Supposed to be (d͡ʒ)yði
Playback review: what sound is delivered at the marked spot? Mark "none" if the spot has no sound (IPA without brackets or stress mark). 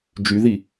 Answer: d͡ʒ